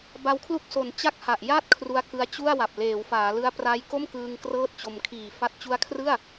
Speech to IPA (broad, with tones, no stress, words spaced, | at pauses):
ba˦˥wkʰlu˥˩k̚so˨˩n t͡ɕa˥˩k̚ha˨˩ʔ ja˥˩t̚ kʰru˦˥a̯kɯ˦˥a̯t͡ɕu˥˩a̯wa˨˩p̚ leː˩˦wfaː˩˦lɯ˦˥a̯ pra˦˥j ko˥˩mkɯː˧ŋ krɤː˥˩t̚t͡ɕo˧m kʰiː˨˩fa˦˥t̚ t͡ɕu˦˥a̯kʰrɯ˥˩a̯